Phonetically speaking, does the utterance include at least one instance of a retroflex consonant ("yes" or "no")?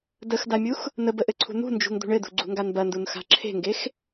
yes